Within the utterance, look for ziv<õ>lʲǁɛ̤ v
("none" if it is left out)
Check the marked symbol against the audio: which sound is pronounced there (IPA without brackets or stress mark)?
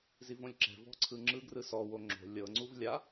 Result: õ